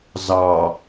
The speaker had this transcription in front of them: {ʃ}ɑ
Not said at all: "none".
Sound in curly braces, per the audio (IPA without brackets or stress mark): z